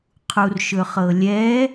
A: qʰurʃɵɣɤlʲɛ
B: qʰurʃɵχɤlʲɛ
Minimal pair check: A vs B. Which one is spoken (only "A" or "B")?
B